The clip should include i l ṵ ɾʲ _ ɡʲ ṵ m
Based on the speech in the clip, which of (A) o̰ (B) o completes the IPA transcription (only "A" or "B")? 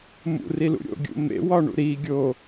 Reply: A